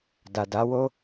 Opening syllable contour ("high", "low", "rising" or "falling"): low